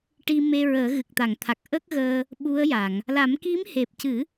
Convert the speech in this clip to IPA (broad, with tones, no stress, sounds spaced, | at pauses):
ʈ i˧ m e˧ ɹ əː˨˩˦ ɣ ɨ˨˩ k̚ t̪ a˨˩˨ ŋ t̪ʰ a˨˩ k̚ ʔ ə˦˥ k̚ ɣ əː˧ | ɓ u˧˥ ə̯ j a˨˩˨ ŋ | l a˨˩˦ m k i˧˥ m h e˨˩ p̚ c ɨ˨˩˦